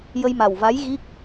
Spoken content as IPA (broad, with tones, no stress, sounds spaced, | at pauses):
j ə˧ j m a˨˩ w v a˧˥ j ɣ i˦˥ k̚